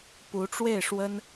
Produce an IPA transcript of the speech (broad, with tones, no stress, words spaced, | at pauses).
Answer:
pu˧˥ʈ͡ʂwe˥˩ɪ̯ʂwə˥n